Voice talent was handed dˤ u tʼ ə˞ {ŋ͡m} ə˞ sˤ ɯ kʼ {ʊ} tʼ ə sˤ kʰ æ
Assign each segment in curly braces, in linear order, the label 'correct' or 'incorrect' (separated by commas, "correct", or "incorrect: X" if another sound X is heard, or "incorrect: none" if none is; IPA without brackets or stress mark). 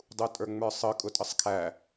correct, correct